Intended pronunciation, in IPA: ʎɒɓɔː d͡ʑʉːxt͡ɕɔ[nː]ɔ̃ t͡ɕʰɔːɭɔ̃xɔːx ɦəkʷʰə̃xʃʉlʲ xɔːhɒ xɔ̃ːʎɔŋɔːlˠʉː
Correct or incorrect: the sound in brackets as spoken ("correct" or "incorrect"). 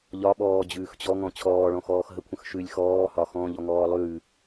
incorrect